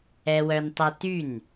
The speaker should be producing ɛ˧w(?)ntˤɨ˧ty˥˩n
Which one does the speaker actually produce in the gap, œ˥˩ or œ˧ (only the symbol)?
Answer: œ˧